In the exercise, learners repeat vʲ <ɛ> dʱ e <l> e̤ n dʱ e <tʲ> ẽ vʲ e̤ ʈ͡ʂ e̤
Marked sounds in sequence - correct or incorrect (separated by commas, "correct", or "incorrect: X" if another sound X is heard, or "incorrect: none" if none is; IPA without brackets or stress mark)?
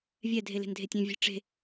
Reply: correct, correct, correct